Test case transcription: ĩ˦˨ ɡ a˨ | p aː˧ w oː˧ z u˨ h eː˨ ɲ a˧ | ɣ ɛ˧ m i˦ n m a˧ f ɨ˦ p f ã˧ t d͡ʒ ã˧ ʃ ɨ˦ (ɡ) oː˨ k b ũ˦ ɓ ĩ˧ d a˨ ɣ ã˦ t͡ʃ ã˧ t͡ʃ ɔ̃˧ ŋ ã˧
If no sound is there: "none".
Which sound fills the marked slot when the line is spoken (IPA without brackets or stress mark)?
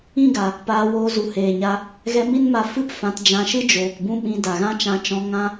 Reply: d͡ʒ